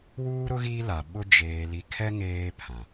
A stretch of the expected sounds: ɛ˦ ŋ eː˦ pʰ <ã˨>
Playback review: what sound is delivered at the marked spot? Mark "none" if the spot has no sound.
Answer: ã˨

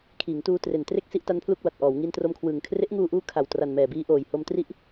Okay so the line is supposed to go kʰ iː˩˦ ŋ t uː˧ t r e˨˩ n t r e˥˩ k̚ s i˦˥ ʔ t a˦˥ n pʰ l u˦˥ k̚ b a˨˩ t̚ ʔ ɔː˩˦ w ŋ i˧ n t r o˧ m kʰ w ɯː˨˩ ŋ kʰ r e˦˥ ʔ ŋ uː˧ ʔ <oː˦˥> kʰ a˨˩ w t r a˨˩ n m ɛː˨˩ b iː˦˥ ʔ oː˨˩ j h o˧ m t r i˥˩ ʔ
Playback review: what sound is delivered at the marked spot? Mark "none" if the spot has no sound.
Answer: uː˦˥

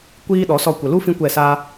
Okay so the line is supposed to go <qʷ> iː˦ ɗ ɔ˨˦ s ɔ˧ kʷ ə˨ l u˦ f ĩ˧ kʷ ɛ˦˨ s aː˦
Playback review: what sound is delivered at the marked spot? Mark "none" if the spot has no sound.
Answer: kʷ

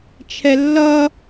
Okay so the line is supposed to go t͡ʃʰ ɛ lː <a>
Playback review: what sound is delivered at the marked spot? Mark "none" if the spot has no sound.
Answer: ʌ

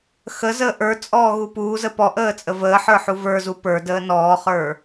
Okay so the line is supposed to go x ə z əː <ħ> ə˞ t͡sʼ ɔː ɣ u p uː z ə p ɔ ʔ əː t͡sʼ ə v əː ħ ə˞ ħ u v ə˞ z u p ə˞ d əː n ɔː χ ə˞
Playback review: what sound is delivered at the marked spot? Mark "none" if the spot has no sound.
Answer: ʔ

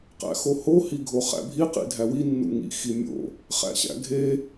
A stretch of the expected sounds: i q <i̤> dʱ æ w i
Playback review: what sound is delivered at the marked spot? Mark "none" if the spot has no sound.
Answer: ḭ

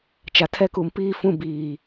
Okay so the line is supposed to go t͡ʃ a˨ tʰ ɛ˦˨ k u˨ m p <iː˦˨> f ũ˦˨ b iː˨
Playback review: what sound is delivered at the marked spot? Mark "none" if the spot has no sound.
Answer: iː˦˨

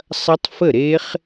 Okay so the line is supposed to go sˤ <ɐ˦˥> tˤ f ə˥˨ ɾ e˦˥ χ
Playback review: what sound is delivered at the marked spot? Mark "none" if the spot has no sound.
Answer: ɐ˦˥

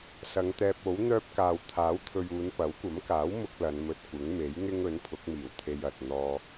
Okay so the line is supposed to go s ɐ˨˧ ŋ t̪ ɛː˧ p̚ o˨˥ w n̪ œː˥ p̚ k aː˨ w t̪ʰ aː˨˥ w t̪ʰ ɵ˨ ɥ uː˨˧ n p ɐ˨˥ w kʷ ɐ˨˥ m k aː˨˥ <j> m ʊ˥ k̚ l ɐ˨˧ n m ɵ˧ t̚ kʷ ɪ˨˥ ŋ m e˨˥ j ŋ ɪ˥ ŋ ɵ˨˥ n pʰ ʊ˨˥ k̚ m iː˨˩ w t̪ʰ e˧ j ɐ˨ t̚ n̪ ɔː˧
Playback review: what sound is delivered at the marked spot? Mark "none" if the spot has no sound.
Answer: w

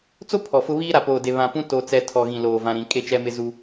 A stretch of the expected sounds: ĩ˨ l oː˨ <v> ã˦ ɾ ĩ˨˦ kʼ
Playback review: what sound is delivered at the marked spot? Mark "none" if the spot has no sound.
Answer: v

